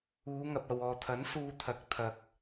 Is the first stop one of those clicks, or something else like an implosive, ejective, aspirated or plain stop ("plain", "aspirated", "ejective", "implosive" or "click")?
plain